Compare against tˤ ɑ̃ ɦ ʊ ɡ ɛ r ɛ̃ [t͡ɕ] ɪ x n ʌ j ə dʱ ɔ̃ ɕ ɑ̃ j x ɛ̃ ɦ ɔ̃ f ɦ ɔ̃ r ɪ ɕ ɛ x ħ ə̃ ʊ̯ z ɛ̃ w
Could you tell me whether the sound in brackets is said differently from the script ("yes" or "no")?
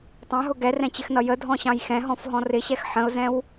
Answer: no